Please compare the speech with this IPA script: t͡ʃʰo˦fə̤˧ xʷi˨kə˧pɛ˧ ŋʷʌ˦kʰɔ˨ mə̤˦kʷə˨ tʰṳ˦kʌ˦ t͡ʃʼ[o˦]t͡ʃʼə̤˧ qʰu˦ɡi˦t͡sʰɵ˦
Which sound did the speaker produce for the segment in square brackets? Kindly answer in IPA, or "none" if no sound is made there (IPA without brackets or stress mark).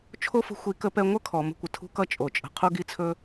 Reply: o˨